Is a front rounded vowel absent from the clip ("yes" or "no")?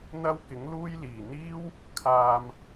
yes